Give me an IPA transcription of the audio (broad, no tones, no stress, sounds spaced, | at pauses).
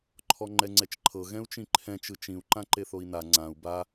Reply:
ǃʰ ɔ ŋ͡ǃ ɛ ŋ͡ǀ ɛ t͡ʃ ǃʰ ɤ ɣ ɛ̃ u̯ t͡ʃ ĩ ǃʰ ɛ̃ t͡ʃ ɯ t͡ʃ ĩ u̯ ǃ ã ǃ e θ o i̯ n a ŋ͡ǀ ã u̯ b a